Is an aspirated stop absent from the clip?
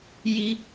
yes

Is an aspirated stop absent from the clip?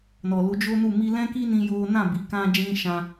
yes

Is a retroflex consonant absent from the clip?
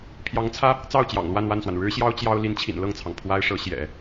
no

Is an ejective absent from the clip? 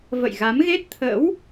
yes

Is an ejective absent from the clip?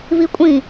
no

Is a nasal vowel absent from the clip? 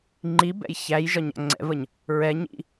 yes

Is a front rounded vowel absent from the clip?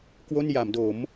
yes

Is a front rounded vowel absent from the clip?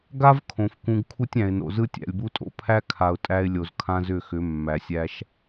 no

